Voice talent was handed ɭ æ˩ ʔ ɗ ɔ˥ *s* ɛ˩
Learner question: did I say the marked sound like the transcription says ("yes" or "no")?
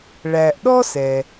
yes